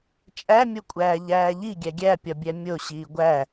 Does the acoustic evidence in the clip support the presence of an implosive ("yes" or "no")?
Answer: no